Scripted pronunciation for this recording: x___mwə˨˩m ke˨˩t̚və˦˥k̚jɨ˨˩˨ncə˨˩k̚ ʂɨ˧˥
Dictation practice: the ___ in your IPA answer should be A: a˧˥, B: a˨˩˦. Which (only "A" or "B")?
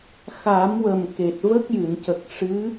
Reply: B